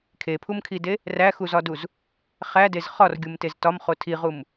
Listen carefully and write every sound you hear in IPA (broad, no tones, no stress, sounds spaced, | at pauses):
kʰ e pʰ u m kʰ i d e | r æ x u z ɒ d u z | χ æ d e z χ ɒ r ɡʲ u m t e z t ɒ m χ o tʰ i ʁ u m